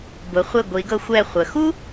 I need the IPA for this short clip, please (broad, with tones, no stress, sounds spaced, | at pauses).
b ʊ˩˧ χʷ e˧˩ ɡʷ i˩˧ ɡ ɤ˧ xʷ ɛ˧˩ χʷ ə˩˧ x u˥